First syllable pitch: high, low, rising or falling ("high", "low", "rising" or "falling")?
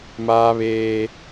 high